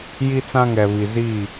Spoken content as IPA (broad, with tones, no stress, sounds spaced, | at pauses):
j i˦ t͡s ã˦ ŋ ɛ˨ β i˨ z i˦˨